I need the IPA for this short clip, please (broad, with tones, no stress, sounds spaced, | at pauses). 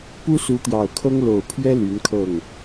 p u˥ s u˧˥ t̪ j ɑ˨˩ ʊ̯ kʰ ɤ˥ ŋ l o˨˩ ʊ̯ pʰ ɥ ɛ˥ l y˧˥ n kʰ ɤ˥˩ ŋ